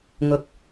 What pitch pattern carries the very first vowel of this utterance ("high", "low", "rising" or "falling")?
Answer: low